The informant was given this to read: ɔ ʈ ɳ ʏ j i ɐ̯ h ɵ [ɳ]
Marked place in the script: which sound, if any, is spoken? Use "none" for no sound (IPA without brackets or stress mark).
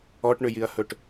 ʈ